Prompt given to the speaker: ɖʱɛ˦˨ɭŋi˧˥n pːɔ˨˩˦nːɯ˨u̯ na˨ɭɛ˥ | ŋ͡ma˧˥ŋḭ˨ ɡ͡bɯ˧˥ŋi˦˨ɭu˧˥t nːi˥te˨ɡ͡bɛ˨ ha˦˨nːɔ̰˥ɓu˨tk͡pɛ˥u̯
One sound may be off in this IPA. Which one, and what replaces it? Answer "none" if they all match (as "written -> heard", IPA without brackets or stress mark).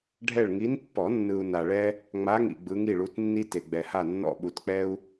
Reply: none